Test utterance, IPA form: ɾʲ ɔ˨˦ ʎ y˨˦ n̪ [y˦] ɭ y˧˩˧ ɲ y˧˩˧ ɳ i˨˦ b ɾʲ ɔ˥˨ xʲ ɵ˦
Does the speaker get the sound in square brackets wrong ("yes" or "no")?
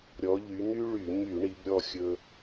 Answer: no